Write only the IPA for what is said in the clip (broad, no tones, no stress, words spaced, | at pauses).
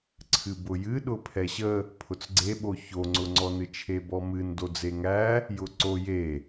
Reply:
ǀʰɨbʊjɨ ɗʊpʰɛɕə | pʰʊt͡sɡ͡ǀeɓo çoŋ͡ǀʊŋ͡ǀɔ nɨt͡ʃʰebɔmɨn dod͡zeŋæ | jʊǀo je